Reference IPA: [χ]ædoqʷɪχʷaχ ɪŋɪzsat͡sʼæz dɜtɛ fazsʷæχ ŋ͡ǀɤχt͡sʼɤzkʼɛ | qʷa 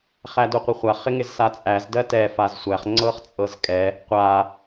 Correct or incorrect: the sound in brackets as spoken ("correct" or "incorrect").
correct